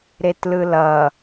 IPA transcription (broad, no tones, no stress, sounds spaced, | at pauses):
ɾ e t l ɯ l ʌ